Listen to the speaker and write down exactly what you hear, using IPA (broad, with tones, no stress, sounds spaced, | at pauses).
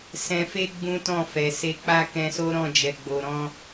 s ɛ̃˧ f e˦ ɡ͡b ũ˦ t ɔ̃˦˨ f ɛ˨ s e˧ k͡p a˦ k ɛ̃˧ s o˦ ɾ ɔ̃˦˨ d͡ʒ ɛ˨ ɡ͡b o˨ ɾ ɔ̃˧